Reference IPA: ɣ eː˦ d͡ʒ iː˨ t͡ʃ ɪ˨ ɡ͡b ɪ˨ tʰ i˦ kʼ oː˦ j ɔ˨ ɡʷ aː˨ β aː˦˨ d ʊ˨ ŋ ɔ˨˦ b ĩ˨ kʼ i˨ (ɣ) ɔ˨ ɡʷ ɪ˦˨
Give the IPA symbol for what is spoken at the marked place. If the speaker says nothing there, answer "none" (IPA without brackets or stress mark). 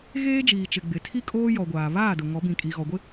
ɣ